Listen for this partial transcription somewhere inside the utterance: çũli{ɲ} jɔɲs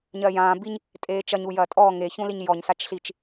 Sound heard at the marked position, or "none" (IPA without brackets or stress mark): ɲ